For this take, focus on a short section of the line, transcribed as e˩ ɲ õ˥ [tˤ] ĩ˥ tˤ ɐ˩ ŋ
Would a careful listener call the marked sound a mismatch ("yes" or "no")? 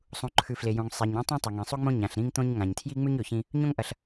no